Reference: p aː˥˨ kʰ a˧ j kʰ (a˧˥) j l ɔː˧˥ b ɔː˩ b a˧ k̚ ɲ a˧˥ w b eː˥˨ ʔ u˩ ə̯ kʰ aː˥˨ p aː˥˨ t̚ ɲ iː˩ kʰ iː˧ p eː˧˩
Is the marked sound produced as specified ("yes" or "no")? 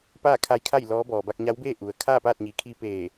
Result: no